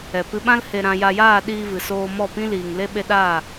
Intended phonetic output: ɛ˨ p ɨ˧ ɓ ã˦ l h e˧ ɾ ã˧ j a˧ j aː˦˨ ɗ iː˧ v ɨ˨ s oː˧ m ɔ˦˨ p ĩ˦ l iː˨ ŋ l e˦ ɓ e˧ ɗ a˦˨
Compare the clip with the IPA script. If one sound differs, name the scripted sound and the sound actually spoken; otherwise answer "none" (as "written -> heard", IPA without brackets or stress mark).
none